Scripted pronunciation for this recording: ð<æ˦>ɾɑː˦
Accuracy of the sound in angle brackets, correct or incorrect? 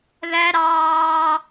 correct